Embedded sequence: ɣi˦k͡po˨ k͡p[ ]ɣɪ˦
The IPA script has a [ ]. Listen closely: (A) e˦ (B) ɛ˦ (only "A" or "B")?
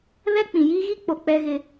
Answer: B